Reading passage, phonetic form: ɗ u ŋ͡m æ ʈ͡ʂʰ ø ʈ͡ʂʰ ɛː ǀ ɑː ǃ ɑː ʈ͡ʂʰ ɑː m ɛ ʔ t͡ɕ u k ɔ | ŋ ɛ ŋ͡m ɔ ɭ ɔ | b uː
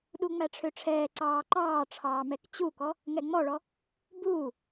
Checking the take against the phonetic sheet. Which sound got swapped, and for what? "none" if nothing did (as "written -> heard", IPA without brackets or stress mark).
ʔ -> k